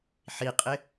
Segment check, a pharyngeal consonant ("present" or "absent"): present